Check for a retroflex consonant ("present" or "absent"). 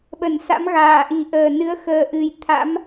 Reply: absent